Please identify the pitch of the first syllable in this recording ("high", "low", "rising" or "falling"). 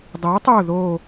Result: rising